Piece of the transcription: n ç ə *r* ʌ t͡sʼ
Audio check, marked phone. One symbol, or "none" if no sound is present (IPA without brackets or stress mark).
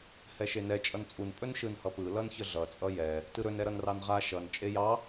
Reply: ɮ